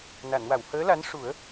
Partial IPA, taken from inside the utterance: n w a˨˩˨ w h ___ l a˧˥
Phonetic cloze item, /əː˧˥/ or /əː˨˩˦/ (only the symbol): əː˧˥